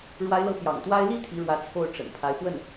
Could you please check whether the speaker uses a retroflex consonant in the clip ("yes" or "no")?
yes